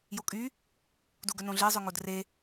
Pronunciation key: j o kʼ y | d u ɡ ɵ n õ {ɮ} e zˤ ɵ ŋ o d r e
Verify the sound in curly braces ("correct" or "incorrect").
correct